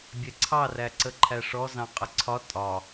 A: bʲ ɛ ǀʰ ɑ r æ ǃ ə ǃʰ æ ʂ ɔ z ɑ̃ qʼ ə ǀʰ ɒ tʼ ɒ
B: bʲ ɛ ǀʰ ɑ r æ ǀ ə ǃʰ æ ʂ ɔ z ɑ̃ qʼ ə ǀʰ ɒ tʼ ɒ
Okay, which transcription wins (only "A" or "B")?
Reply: B